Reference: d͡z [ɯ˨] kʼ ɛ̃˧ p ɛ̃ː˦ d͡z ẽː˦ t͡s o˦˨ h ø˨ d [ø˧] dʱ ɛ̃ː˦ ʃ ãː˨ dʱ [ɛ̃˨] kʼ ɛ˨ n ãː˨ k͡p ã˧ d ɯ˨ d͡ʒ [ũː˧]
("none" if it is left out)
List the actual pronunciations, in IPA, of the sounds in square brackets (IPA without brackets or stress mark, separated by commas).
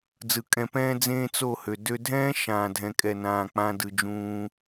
ɯ˨, ø˧, ɛ̃˨, ũː˧